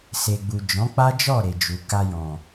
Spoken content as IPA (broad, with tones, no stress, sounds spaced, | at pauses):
s e˨ ɡ͡b u˨ d͡ʒ ɔ̃˨˦ k͡p a˦ d͡ʒ ɔ˦˨ ɾ e˨ d͡ʒ u˨ k a˧ j ɔ̃˨